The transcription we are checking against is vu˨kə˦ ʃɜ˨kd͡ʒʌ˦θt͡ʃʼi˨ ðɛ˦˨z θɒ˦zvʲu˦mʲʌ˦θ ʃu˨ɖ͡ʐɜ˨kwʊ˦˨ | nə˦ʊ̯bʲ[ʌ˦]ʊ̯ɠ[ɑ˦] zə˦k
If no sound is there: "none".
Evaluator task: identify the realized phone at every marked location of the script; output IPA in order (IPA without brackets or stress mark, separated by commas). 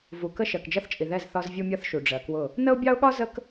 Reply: ɑ˦, ɒ˦